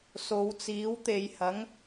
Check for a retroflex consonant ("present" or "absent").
absent